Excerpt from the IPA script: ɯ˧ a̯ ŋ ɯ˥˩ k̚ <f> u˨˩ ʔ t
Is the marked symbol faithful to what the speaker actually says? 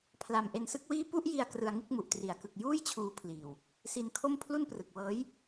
no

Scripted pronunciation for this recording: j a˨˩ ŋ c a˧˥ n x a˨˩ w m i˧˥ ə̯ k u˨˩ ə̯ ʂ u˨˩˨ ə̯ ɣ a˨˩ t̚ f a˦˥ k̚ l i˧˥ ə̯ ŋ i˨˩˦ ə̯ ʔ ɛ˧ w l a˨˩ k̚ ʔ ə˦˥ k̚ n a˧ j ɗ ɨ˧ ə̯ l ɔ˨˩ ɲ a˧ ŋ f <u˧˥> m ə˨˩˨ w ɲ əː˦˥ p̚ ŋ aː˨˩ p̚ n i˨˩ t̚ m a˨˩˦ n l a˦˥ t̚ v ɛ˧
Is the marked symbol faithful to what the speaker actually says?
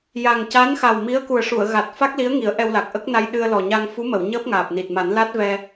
yes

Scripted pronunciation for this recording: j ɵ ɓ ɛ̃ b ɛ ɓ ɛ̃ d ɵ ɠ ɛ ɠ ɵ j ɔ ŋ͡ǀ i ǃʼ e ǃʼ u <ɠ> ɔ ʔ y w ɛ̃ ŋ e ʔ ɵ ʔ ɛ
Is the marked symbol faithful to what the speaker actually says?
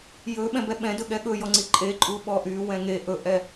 no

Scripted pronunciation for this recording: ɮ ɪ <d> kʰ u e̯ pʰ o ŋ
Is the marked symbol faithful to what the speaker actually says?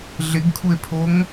no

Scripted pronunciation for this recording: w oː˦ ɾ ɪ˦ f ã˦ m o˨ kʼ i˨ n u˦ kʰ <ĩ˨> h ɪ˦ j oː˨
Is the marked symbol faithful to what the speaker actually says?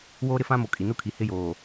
no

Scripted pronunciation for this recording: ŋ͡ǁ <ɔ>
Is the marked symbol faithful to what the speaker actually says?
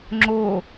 no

